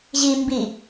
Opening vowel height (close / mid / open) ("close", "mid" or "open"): close